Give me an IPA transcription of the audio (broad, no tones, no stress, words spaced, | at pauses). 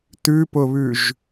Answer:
tʉpʊβʉʒ